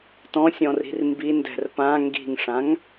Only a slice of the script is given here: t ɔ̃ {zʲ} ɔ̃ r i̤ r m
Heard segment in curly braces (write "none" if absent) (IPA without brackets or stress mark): sʲ